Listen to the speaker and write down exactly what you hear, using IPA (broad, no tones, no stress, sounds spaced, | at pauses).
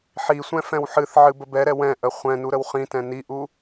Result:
ħ i sʷ ɛ̃ f ɛ̃ w ħ ɨ θ ʕ ɨ b ə b ɛ ɾ ɛ w ɛ̃ ʔ ə χʷ ɛ̃ n u ɾ ə w χ ĩ t ɛ̃ n i ʔ u